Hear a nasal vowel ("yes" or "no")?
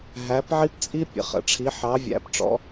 no